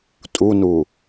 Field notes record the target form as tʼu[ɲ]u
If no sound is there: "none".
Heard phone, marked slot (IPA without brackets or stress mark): n